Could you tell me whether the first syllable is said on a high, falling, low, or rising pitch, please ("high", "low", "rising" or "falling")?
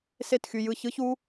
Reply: falling